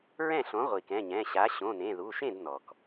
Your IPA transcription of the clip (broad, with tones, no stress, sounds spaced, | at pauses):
ɹ ɛ̃˥˩ ɬ õ˩˥ ʁʷ i˩ k ɛ̃˩˧˩ ɲ ɛ̃˩˧˩ ɕ a˩˥ ɕ õ˩˧˩ n ẽ˩˧˩ ð u˩˧˩ ʃ ẽ˥˩ d n ɔ˩ k